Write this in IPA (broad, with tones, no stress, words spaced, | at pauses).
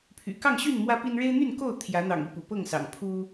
pʰy̰˨˩ kɑ˥˨ŋɕy˥˨n mwä˦pi˦n ɻe˦ɪ̯n̪y˥˨nko˥˨ʊ̯ t̪ʰjä˨˦n̪ɑ̰˨˩ŋi˥˨pṵ˨˩ pɤ˥˨ŋsɑ̰˨˩ŋ pʰu˦